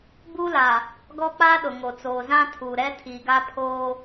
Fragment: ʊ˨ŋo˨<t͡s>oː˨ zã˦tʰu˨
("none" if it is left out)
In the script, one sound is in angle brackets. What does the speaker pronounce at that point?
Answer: t͡s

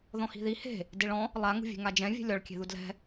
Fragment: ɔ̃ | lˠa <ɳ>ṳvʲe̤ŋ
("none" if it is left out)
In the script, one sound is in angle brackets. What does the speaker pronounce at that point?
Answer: ŋ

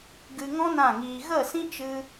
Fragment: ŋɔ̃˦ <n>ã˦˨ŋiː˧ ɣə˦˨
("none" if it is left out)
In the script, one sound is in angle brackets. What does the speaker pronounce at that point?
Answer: n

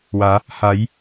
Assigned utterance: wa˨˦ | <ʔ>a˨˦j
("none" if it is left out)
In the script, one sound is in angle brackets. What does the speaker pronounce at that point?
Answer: h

